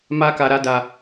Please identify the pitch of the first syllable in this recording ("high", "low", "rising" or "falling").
high